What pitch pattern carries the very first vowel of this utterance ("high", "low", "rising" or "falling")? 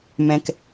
low